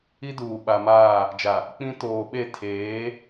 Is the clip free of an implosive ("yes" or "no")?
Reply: no